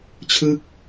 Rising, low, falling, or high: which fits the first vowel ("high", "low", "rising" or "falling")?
falling